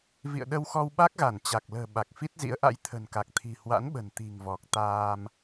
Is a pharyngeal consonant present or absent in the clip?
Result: absent